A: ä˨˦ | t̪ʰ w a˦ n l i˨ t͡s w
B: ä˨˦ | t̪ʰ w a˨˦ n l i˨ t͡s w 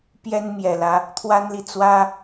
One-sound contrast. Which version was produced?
A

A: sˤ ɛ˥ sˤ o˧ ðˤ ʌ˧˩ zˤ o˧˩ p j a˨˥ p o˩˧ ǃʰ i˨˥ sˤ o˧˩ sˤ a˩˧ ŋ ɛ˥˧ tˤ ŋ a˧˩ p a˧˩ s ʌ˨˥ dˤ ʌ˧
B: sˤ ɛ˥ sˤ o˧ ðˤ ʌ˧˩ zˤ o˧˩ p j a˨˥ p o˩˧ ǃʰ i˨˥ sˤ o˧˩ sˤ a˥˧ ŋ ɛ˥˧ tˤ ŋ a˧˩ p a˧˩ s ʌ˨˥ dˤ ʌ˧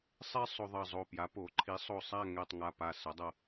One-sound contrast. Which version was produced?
B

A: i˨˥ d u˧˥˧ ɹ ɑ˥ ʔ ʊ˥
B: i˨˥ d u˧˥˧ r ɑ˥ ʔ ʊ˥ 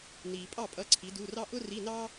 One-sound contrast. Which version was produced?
B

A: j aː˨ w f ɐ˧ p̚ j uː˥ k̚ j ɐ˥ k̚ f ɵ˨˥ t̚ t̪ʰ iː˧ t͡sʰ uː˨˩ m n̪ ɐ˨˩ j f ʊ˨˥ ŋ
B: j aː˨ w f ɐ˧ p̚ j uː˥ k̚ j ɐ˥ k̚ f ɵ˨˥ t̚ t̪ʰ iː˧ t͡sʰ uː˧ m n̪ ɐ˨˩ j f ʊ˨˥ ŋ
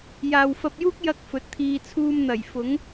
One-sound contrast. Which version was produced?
B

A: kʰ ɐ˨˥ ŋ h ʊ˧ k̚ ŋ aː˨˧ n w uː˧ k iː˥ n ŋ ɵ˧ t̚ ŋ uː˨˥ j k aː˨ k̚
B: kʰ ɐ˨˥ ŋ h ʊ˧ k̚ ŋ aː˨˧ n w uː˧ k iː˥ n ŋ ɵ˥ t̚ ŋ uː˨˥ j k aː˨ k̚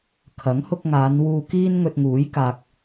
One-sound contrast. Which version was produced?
A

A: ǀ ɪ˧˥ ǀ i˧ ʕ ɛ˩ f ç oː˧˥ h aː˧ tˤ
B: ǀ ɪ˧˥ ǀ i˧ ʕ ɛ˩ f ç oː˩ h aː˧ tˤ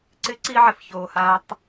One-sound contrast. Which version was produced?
B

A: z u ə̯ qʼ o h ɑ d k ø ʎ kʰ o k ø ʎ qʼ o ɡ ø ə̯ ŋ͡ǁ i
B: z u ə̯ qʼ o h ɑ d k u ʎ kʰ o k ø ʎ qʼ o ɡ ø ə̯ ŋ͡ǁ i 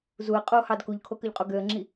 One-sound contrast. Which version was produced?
B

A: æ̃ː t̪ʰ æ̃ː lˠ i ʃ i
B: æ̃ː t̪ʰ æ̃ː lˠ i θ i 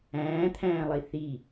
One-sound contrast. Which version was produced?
B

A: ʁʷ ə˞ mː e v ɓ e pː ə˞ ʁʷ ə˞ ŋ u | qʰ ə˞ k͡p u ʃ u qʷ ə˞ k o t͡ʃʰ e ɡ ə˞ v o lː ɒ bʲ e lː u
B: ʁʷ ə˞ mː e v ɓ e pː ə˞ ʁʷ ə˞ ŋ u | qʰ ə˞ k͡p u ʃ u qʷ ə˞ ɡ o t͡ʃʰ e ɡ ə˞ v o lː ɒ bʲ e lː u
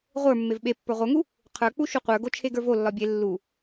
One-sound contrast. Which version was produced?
B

